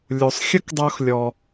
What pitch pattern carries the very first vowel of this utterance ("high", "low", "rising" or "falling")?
low